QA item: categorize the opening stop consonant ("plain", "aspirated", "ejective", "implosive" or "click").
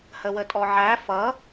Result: ejective